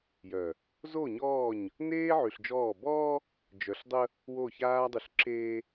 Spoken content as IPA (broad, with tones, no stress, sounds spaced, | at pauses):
j œ˨ | z o˦˨ ɲ ɔː˦˨ ɲ | n eː˦ ʕ y˨ ɬ d͡ʒ ɔː˦˨ b ɔː˦ | d͡ʒ œ˨ ɬ dˤ ə˦ | w o˦˨ ç aː˦ dˤ y˨ ɬ ǁ eː˦